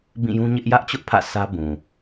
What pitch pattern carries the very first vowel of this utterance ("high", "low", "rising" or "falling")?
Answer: falling